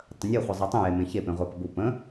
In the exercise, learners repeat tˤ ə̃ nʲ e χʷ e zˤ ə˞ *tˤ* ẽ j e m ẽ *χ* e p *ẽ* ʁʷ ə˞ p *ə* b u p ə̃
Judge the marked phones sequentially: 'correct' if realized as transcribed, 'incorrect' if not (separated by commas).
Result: correct, incorrect, correct, correct